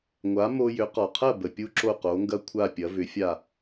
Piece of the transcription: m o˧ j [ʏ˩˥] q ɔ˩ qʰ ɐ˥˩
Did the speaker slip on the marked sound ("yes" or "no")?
no